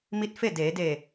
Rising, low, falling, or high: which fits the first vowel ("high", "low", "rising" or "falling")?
rising